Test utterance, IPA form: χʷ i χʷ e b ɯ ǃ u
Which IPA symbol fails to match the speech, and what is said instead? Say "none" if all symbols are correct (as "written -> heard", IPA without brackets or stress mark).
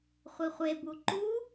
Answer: ɯ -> u